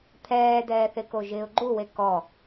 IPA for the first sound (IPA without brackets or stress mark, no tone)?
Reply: t̪ʰ